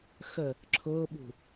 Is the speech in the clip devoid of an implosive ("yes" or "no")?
no